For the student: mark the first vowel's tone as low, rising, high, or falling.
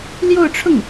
falling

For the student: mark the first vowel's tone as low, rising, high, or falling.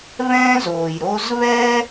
high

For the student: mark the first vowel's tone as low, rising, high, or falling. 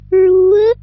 rising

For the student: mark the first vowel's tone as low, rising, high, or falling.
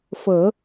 low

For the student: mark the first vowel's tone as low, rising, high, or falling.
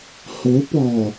rising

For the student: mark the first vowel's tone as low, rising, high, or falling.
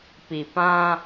low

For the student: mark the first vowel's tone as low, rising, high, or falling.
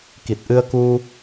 low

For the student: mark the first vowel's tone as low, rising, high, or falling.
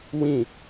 falling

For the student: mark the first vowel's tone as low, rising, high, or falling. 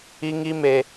high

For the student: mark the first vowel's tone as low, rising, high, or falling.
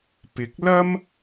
rising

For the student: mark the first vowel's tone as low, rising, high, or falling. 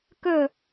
falling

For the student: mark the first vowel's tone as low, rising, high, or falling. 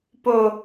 low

